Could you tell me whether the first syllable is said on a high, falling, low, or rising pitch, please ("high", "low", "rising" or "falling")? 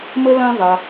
high